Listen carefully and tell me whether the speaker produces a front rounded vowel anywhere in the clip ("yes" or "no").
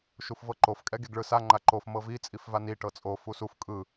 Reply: no